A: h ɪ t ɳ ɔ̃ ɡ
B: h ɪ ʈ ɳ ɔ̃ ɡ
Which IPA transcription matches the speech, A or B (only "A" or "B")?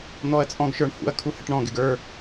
B